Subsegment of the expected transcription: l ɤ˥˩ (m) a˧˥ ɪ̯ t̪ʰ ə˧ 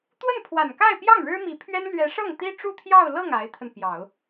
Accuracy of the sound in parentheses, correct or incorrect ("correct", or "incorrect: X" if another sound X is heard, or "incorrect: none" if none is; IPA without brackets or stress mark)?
incorrect: ŋ